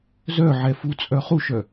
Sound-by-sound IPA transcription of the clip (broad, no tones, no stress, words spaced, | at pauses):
zœʕɛ fut͡sʼœ χuʃœ